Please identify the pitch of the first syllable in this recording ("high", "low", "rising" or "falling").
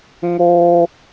high